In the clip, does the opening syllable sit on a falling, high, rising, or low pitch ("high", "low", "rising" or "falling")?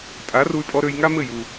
rising